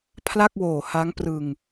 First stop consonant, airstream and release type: aspirated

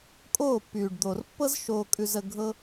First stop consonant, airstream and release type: ejective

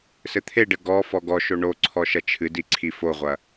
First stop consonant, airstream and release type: aspirated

